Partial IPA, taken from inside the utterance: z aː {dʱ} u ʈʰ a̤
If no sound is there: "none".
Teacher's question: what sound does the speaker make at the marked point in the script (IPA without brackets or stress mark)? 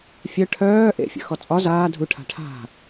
dʱ